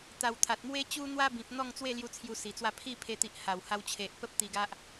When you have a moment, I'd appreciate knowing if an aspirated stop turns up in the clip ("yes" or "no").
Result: yes